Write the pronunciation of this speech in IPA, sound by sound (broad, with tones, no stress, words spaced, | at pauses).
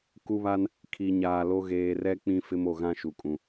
ku˦βa˦n | kʰi˨ɲaː˨lo˦ ɣeː˨rɛ˦ k͡pĩ˦fɪ˦m o˨ɣã˦ ʃu˨kʼũ˨